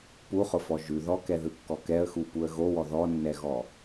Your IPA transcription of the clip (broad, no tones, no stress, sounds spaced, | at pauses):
p u χ ʊ f ɔ ʒ ʉ ð ɔ k ɛ ð ɯ kː ɔ k ɛ ə̯ x u p u ə̯ ɣ o w ɔ ð ɔ nː ɛ ɣ ɔ